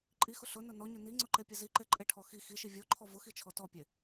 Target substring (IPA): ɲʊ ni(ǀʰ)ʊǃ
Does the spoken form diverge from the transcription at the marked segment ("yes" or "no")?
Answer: yes